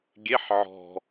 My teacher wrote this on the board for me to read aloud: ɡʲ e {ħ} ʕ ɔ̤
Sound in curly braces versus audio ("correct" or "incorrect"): correct